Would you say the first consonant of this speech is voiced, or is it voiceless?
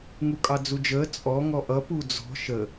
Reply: voiced